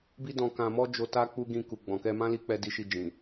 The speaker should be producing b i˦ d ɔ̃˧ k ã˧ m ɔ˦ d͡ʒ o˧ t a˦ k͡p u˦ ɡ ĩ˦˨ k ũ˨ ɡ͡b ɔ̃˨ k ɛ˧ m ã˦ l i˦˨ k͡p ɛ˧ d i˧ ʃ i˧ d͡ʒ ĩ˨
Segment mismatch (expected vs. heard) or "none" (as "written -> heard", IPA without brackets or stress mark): ũ˨ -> u˨